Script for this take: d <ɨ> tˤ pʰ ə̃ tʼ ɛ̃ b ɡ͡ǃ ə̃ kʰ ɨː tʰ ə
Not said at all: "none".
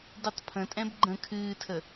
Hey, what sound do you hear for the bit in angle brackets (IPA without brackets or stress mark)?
ɨ